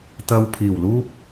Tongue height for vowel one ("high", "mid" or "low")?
low